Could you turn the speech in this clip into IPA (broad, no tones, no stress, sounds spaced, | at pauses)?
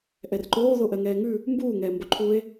ʔ ɛ r ǃ oː ð o ʔ ɜ ŋ ɛː ŋ ʉ | m b uː ŋ ɛː m b o ǃʰ u e̯